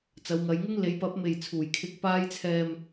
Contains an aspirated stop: yes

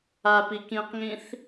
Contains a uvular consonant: yes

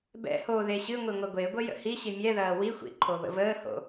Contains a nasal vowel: no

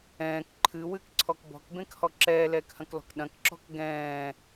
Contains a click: yes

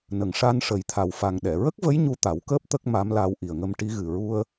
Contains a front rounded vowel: no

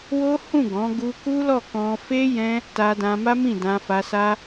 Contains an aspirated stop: no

